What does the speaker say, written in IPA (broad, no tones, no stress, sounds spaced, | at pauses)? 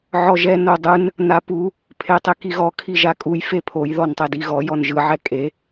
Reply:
ʕ ɔ ʒ ɛ n o dˤ ɯ n | n a p u | pʰ e tˤ e k i ɣ ɔ kʰ i ʒ a kʼ u j f e pʰ o j ð ɔ n tˤ ɛ d i ɣ ɔ j ɔ n ʒ ɯ ʕ ɛ kʼ e